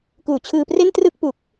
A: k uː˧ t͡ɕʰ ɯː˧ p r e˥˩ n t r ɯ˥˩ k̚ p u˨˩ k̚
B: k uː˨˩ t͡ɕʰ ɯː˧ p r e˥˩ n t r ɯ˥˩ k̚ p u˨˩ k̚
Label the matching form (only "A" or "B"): B